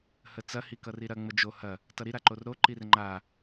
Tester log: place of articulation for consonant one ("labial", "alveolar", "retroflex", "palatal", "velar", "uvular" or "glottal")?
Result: glottal